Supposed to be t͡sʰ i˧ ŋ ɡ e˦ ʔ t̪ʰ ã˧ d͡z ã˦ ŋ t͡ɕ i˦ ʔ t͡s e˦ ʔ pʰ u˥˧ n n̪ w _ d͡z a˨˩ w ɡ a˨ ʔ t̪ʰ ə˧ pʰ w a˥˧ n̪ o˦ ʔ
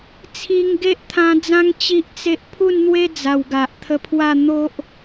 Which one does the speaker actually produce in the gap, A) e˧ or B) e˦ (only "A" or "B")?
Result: B